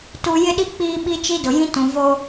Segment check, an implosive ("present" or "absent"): present